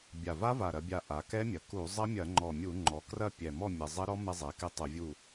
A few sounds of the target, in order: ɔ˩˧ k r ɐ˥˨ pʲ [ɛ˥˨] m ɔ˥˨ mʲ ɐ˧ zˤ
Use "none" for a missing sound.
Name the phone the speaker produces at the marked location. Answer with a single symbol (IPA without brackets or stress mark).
ɛ˨˩